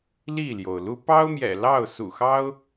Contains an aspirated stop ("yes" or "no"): no